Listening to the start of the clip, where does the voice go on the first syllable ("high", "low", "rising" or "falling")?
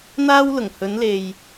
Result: high